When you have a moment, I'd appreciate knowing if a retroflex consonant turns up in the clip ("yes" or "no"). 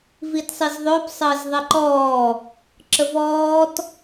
no